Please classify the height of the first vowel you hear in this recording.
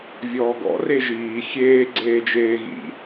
mid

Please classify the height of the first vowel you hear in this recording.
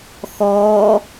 mid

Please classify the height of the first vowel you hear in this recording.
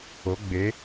mid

